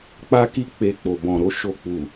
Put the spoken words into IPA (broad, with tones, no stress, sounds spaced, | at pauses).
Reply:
k͡p a˦ k i˦ k͡p e˧ k͡p o˨ b ɔ̃˨ ɾ o˨˦ ʃ o˦˨ k͡p u˨